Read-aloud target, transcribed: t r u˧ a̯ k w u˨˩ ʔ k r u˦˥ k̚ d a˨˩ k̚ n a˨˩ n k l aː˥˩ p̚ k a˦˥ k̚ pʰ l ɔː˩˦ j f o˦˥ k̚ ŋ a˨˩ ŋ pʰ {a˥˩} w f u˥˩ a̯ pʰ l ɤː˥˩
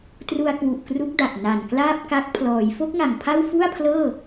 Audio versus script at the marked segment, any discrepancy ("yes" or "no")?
no